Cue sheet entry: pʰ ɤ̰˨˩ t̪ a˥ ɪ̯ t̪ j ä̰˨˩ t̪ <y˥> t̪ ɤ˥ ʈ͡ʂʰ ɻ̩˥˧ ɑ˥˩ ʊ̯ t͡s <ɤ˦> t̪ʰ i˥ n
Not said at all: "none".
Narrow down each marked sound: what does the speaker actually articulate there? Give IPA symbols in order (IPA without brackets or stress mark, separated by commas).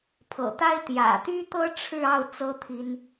y˥, ɤ˥